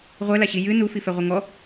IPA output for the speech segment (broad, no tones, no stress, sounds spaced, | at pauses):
ʁʷ ɛ l a ɕ i j ɨ n u f i f ɛ ʁʷ ɘ ŋ ɔ